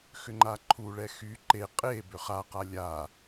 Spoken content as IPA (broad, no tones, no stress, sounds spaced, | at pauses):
x ʏ ŋ͡ǃ a ǃʰ u ɭ ɛ x y ǃ e qʼ e b ʏ χ a q a lʲ a